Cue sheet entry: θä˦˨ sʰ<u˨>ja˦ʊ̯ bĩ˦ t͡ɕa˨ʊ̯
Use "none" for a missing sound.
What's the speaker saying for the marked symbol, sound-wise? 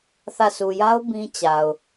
u˨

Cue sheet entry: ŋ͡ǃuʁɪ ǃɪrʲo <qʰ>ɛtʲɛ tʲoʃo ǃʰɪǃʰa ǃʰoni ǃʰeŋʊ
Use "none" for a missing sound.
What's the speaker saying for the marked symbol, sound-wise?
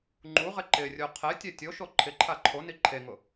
qʰ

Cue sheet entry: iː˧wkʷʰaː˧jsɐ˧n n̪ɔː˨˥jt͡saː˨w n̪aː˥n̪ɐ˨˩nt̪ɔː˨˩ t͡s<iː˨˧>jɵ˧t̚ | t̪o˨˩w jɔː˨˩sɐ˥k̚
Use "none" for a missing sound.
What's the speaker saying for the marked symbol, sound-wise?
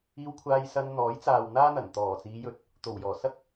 iː˨˧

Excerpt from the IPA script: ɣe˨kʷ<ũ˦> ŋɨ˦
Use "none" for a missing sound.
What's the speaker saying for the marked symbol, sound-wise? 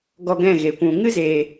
ũ˨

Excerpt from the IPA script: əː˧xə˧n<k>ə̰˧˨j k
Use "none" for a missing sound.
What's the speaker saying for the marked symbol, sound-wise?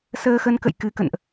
k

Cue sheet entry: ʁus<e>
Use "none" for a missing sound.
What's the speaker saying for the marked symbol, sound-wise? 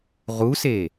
e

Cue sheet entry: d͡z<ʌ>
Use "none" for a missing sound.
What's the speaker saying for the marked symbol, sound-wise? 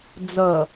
ʌ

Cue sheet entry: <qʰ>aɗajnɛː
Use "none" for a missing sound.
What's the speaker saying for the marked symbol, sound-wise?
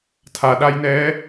tʰ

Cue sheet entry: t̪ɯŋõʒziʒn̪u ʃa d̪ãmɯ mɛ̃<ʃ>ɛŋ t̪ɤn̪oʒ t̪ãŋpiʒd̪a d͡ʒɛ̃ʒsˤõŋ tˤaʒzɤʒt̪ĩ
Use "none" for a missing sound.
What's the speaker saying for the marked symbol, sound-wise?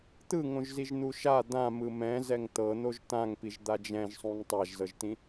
z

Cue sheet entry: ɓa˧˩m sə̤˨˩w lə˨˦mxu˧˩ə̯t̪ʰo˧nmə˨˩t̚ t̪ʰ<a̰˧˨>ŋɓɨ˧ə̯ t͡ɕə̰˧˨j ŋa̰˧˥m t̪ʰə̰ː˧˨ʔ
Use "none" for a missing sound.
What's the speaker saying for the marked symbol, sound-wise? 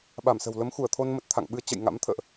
a̰˧˨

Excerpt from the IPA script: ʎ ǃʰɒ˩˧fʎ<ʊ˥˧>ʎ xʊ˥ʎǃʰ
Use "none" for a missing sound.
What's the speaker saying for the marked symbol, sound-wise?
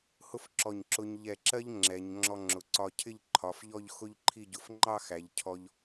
ɔ˥˧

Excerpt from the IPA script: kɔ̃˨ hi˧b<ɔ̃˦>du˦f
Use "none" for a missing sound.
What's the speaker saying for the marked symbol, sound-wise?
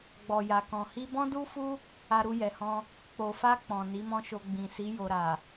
ɔ̃˦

